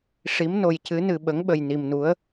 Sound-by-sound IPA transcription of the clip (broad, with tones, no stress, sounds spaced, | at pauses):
ʂ i˧˥ m n o˧ j c ɨ˧˥ n ɨ˧ ɓ ə˧˥ ŋ ɓ ə˧ j n i˧ m n u˧˥ ə̯